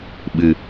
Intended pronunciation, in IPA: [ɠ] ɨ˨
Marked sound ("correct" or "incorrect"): incorrect